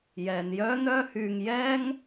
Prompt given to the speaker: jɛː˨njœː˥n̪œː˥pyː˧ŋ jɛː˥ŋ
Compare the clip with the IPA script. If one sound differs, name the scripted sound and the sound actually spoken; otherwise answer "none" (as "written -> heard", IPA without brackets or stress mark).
p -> h